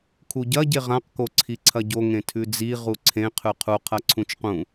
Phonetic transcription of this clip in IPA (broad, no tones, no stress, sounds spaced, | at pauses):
kʰ u ɟ ɐ ɟ e ʁ ã q k o ǀʰ i ǀʰ ɐ ɟ o ŋ ẽ tʰ ʉ d͡z i ʁ u ǀʰ ẽ qʰ ʉ qʰ u qʰ ɐ ǀʰ ũ t͡ʃ q ũ